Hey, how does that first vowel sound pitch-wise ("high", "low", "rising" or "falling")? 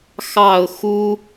low